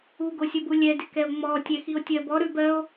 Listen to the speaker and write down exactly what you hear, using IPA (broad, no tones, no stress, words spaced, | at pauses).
uɡosʲobu lʲɛdɪkɛo̯ ŋ͡mɔ tʲɛxio̯tʲɜbɔ ɾʉb ɜo̯